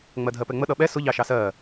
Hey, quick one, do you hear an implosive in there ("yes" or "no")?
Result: yes